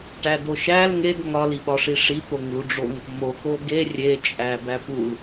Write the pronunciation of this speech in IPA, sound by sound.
ʈ æ d o ʃ æ l ŋ e d ŋ ɒ l i ɓ ɒ ʂ i ʂ i t̪ o ŋ l u ɖ͡ʐ o ŋ | m o k o ɡ e rʲ e t͡ʃʼ æ b æ p u l

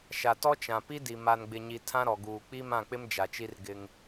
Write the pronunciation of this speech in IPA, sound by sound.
ʃ a˨ t ɔ˦ t͡ʃ ã˨ p i˦ d i˨ m a˨ n ɡ͡b ɪ˨ ɲ i˨ tʰ ã˦ ɾ ɔ˨ ɡ uː˨ k͡p i˦ m ã˦˨ k͡p ɪ˦ m d͡ʒ a˨ t͡ʃ i˦ r ɡ ɪ˦ ŋ

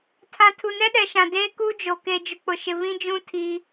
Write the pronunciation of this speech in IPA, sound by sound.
tʰ ã˨ tʰ u˨ n ɛ˦ ɗ ɛ˨ ʃ ã˨ d eː˦ k u˦ d͡ʒ o˨ k e˨ d͡ʒ ʊ˨ k͡p ʊ˨ ʃ ɪ˨ β ĩ˦ d͡ʒ ũ˦ tʰ i˦

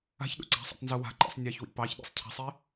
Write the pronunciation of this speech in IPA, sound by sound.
a̤ ç ɗ ṵ ǀ a̤ sˤ a̰ tˤ n z u w a̤ ǃ a̰ sˤ nʲ ɑ ç w ḭ p ɑ ç ɗ ḭ sˤ cʰ a̤ sˤ i

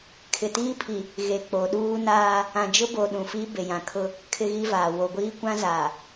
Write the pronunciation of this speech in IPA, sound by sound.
kʰ ɪ˨ t iː˦ pʰ i˨ | ɣ e˨ k͡p o˨ ɗ uː˦ n aː˦ | ã˨ d͡ʒ ʊ˦ b o˨ ɗ ũ˨ f i˦ b e˨ j ã˨ kʰ ʊ˦ | kʰ ɪ˦ ɣ i˦ v aː˨ w o˨ ɡʷ iː˦ kʷ ã˦ z aː˨

